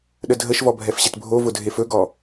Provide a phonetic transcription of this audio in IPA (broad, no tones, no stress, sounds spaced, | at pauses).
ɗ ə dʱ ə ʃ v ɔ bʱ ɛ f ɕ ɪ t bʱ o v ʊ dʱ e f ɵ ɡ ɔ